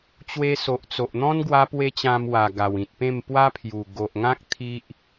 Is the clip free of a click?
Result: yes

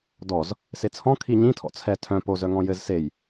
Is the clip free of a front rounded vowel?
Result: no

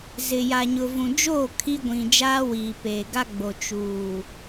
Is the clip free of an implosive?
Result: yes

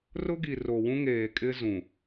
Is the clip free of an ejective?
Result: no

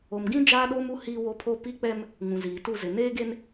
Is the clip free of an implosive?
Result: no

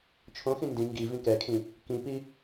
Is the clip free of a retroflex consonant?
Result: yes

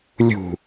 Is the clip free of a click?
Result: yes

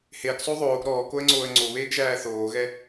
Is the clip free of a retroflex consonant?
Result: yes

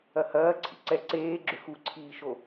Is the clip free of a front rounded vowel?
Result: no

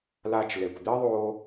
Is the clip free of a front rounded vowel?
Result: yes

